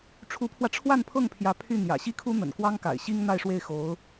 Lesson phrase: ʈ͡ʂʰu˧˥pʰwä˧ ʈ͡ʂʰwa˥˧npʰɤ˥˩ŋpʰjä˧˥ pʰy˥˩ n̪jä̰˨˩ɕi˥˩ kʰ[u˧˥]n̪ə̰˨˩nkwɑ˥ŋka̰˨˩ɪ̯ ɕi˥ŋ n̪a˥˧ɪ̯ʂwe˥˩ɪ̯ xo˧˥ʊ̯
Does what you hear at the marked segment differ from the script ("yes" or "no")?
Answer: yes